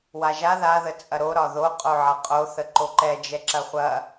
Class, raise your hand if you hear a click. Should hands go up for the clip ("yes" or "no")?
yes